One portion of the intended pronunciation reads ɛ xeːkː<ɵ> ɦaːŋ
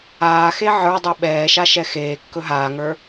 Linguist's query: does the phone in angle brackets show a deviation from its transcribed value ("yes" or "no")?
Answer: no